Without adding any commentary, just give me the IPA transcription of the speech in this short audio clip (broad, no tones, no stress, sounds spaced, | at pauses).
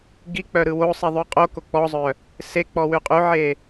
ɡ i k͡p œ ɾ ɯ w o sˤ i ðˤ ʉ qʼ o k o k͡p ɔ zˤ œ | s e k͡p ɔ w ʉ qʼ ʉ ʕ e